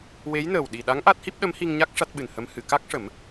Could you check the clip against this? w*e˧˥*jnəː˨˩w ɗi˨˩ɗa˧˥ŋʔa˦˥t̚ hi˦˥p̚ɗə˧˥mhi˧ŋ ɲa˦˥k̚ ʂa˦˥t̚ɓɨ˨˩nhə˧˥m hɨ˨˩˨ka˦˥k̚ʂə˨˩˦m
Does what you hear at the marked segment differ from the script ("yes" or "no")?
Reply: no